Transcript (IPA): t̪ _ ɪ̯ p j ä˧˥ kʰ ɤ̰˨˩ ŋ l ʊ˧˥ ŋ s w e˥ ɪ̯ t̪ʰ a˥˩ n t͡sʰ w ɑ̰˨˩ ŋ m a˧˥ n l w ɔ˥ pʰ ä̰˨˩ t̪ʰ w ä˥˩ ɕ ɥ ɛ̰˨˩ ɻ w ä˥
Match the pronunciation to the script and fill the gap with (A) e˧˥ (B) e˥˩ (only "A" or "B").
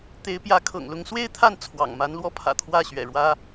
A